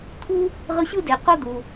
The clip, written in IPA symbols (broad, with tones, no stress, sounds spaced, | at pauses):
t̪ʰ u˥ | ʁ ɯ˦ ɕ ɯ˥ d e˨ q o˥ d̪ u˨